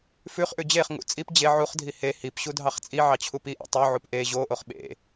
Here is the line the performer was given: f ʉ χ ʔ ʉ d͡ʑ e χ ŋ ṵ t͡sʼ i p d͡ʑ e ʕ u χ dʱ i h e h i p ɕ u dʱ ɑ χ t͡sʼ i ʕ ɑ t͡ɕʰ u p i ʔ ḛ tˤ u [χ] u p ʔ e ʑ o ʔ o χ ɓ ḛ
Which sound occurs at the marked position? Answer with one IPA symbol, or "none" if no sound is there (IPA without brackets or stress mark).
ʕ